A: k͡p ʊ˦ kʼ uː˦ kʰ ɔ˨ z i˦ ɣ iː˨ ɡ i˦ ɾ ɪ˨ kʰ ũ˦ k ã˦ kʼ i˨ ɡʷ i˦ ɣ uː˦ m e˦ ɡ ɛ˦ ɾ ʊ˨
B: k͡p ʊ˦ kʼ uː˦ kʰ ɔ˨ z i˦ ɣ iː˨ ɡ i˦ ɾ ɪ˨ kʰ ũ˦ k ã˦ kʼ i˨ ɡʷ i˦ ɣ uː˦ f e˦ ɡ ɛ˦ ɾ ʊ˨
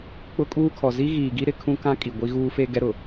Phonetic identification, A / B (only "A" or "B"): B